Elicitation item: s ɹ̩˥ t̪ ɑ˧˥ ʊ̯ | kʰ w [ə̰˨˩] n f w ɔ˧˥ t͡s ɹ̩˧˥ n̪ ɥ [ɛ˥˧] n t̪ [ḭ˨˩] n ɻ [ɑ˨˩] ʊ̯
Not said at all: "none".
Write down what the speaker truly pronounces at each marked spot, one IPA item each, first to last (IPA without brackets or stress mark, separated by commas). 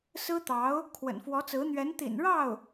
ə̰˨˩, ɛ˧˥, ḭ˨˩, ɑ˥˩